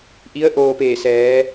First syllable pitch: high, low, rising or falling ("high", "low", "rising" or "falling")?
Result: rising